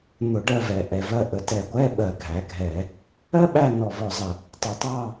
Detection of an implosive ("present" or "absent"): present